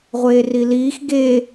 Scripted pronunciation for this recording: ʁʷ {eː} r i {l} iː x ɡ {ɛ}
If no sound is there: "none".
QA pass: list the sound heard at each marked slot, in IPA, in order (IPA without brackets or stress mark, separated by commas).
eː, l, e